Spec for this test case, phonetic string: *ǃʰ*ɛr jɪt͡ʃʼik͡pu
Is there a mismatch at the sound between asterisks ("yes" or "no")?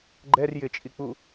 yes